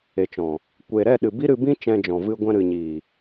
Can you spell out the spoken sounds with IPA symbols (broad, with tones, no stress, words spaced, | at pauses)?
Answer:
e˨t͡ʃɔ̃˨ | kʷe˨ ɾɛ˦˨ɗɨ˨ bi˦ɾɨ˧bĩ˦ t͡ʃɛ̃˧d͡ʒɔ̃˨ vɨ˧ɡʷɛ̃˧ ɾɨ˨ɲiː˨